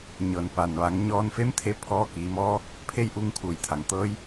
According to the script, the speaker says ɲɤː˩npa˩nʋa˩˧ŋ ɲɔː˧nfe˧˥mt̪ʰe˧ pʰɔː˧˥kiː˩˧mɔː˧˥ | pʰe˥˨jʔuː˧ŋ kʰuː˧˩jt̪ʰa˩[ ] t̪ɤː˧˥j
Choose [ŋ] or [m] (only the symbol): ŋ